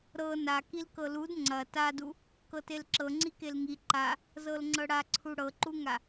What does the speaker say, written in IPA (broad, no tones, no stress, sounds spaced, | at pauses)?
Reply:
ɾ ɤ n a k i l k ɤ l u d ŋ͡ǀ ɐ t a d u | k ɤ t e l ǁ ɤ ŋ͡ǀ i k e l ŋ i ǃ a | z ɤ l ŋ͡ǀ ɤ ɽ a ǀʰ u ɽ ɤ ǃ u ŋ a